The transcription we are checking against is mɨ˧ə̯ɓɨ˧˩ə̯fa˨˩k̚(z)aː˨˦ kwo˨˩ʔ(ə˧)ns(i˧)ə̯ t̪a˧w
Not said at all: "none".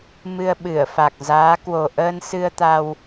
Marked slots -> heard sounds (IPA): z, əː˧, ɨ˧

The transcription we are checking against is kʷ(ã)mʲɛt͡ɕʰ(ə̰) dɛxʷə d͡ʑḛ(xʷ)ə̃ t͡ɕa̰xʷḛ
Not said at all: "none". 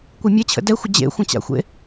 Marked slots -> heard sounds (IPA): a, ə̰, xʷ

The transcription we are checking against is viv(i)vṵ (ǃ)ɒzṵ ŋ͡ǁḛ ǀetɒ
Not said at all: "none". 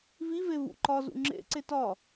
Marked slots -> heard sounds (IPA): e, ǃ

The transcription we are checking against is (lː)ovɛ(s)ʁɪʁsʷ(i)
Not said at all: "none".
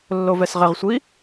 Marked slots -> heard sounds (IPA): lː, s, i

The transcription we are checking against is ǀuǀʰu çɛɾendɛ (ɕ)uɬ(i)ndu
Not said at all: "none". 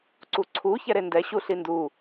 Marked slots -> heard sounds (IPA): ɕ, i

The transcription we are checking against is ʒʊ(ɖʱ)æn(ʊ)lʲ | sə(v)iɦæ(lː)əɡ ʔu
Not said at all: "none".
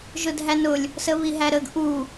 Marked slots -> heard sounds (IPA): dʱ, ʊ, β, ɾ

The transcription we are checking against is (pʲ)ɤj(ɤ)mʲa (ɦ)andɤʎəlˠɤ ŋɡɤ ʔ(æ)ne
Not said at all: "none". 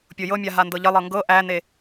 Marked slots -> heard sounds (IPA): pʲ, ɤ, ɦ, æ

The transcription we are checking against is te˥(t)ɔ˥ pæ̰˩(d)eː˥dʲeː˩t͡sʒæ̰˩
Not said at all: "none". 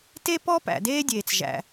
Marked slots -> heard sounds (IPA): p, d

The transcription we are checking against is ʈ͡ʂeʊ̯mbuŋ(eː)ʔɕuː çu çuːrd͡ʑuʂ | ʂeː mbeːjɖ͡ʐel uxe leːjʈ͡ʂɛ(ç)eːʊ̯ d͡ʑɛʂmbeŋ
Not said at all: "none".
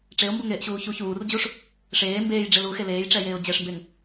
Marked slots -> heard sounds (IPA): eː, j

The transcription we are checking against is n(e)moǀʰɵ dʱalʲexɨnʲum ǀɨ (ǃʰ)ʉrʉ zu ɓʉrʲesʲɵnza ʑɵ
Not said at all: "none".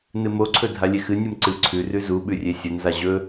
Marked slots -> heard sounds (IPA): ɨ, ǀʰ

